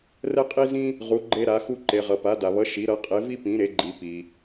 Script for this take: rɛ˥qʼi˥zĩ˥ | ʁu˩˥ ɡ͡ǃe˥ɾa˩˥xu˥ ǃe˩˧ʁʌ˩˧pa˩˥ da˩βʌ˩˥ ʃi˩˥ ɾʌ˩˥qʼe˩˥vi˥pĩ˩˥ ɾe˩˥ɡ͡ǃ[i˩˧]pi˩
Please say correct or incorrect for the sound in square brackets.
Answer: correct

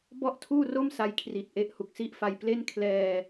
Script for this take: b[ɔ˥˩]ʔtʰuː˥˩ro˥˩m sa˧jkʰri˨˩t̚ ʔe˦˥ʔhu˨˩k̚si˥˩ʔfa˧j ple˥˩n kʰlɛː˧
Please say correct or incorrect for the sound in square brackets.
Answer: correct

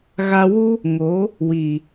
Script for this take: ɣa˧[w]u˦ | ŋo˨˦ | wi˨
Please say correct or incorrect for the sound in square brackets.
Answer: correct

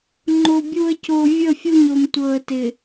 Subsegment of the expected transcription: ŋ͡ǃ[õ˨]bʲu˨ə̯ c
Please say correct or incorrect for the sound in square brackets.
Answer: incorrect: o˨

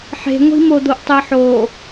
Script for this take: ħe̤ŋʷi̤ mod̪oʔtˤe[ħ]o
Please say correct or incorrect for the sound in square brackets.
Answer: correct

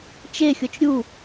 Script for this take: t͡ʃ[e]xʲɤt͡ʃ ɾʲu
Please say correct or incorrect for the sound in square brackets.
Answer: correct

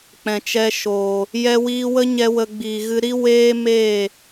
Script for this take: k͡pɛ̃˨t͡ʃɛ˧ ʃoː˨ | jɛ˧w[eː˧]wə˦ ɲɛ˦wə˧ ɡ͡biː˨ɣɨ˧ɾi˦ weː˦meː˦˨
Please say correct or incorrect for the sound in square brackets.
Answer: incorrect: iː˧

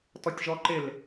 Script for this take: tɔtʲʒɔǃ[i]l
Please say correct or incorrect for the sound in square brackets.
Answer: incorrect: ɪ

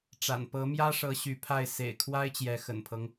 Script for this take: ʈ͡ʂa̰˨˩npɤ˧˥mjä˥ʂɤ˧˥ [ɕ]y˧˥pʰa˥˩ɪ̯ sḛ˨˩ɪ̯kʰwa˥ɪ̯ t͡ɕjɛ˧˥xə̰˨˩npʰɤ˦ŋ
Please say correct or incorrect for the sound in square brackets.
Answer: correct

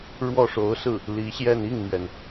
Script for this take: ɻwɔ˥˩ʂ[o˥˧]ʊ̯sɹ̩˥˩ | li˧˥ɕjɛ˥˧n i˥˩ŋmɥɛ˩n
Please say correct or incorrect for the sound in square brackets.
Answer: incorrect: o˧˥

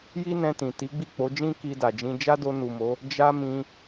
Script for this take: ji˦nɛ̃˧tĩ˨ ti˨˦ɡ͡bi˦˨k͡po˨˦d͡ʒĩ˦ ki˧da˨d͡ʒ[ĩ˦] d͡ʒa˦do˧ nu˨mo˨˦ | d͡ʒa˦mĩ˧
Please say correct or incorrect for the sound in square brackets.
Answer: incorrect: ĩ˧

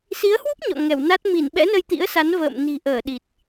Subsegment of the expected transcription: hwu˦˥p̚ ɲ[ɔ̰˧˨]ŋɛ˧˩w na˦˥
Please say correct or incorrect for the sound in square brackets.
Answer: correct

